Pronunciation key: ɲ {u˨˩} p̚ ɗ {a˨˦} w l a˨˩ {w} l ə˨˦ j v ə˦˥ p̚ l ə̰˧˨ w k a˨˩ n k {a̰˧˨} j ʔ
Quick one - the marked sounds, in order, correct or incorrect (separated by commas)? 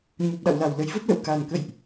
correct, incorrect, correct, incorrect